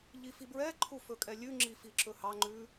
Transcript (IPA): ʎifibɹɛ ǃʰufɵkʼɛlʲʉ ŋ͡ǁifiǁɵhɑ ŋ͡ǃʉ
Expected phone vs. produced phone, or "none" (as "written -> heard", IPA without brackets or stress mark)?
none